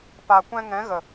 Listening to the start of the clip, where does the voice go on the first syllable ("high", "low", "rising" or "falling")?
low